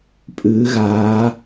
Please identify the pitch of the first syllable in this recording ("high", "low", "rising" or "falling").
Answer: rising